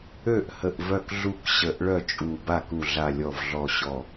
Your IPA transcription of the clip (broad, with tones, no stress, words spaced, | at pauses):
ø˥˩ʔhə˧˩ʔ vœ˧˩kɮu˧˩k ɕə˧˩ʔ ɭœ˥˩t͡ʃʼu˧˩ba˥˩k u˧˩ɮa˧˩lʲɔ˧˩vɮɔ˧˩ ɕɔ˧˩